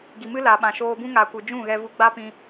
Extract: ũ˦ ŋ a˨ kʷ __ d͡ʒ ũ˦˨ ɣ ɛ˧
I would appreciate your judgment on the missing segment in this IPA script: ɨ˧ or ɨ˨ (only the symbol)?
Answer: ɨ˨